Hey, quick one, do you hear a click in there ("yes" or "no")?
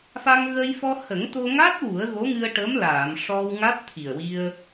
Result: no